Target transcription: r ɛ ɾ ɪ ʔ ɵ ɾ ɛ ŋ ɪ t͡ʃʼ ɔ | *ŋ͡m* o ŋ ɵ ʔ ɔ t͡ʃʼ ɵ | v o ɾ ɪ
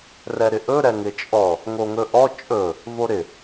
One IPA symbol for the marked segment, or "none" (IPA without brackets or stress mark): ŋ